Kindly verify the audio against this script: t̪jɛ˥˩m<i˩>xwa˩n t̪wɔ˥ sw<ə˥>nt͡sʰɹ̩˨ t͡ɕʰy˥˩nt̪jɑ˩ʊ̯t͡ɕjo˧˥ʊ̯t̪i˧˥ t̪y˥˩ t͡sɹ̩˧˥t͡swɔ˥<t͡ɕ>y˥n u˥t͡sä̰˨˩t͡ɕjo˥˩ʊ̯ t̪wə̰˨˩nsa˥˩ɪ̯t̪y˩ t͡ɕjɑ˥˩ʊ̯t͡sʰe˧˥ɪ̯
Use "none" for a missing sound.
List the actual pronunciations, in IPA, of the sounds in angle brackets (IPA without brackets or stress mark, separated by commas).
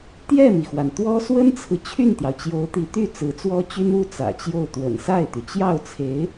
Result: i˩, ə˥, t͡ɕ